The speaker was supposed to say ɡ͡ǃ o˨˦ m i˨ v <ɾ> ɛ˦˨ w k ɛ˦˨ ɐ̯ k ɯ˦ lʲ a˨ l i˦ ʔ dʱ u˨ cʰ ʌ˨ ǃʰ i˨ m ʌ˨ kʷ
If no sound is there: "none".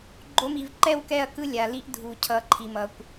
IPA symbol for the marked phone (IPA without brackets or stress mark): ǃ